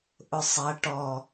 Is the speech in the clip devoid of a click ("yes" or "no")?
yes